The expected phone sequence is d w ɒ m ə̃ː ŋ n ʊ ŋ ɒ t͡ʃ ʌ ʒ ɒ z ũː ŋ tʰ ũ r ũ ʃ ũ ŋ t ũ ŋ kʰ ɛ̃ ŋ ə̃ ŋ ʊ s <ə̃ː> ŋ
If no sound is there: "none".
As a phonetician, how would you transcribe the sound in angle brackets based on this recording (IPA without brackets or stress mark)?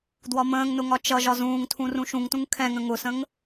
ə̃